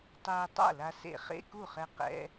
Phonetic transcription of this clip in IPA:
tˤeː˧ tˤa̰˥˩la˧sḛ˧ χḛ˧˥˧ku˥˩χɛ˧ qɛ̰˧˥˧

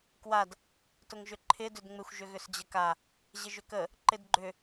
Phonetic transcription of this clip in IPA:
kwad | tʊŋʒʏǃʰɪ dʏdŋ͡mɪxʷ ʒʏɣʏsd͡ʑəka | ʑɪʒʏkə | ǃɪdɡ͡ǃʏ

